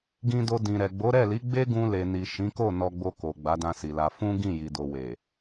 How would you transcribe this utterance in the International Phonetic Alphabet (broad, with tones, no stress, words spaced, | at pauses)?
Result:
ɡĩ˧do˧ dĩ˨ɾɛ˨ ɡ͡bo˨˦ɾɛ˦˨li˨˦ ɡ͡be˦ɡũ˧le˨ni˨ ʃĩ˨˦ko˦˨ nɔ˧ɡ͡bo˧ ko˨ ɡ͡ba˨˦dã˧si˨la˧ fũ˦ ɡĩ˦˨ji˨do˨we˨